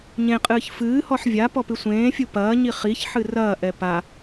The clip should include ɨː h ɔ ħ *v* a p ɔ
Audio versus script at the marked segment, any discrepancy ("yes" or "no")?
yes